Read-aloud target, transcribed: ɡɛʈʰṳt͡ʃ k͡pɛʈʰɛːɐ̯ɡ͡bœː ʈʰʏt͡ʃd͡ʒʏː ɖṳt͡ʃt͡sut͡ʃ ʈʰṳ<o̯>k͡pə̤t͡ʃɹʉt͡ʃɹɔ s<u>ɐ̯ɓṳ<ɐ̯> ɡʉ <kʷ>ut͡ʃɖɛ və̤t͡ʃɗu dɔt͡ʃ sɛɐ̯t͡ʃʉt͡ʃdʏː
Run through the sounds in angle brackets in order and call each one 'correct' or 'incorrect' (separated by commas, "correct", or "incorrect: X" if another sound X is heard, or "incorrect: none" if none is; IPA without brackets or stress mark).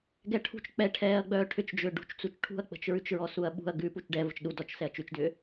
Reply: incorrect: ɐ̯, correct, correct, incorrect: p